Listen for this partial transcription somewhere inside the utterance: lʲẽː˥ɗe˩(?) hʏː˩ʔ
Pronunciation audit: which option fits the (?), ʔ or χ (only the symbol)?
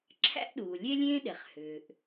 χ